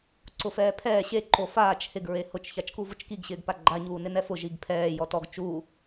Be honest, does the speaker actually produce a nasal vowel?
no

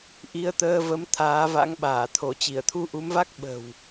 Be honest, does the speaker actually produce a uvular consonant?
no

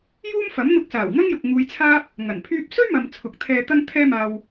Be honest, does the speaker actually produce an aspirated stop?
yes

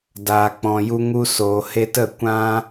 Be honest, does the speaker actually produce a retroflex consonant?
no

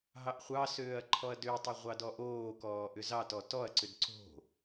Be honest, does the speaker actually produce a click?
yes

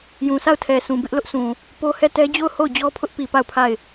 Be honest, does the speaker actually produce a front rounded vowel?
no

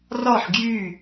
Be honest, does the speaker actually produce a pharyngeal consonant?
yes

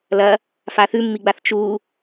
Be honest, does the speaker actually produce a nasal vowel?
no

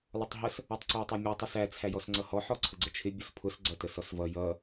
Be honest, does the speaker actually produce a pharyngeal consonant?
yes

